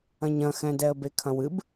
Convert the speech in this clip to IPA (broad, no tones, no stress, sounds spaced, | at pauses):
ɐ̃ ɲ ɐ̃ x ɛ̃ d ɛ ə̯ b e kʰ ɐ̃ w ɨ b